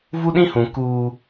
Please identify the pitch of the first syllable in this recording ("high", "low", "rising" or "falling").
high